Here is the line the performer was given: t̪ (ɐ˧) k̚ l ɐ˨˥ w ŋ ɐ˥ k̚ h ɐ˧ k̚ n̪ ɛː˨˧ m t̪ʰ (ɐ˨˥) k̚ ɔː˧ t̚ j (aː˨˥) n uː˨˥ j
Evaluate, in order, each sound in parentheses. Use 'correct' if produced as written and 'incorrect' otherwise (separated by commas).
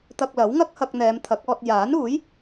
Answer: correct, correct, correct